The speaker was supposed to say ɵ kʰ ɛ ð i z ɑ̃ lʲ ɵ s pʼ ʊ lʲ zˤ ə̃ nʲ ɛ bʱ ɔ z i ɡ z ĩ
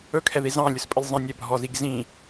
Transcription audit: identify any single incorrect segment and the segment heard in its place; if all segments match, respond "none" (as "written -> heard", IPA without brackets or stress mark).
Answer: ʊ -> ə